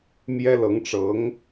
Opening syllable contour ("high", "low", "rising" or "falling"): high